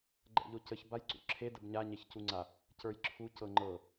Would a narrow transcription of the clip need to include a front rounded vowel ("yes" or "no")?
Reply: no